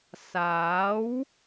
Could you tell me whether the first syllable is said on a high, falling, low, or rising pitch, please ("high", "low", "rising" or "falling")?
rising